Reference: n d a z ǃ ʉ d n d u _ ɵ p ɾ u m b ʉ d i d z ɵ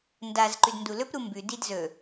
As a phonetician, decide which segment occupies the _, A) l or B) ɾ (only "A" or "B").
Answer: A